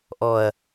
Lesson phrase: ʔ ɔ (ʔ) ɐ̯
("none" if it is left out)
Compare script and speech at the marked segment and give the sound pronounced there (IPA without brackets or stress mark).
none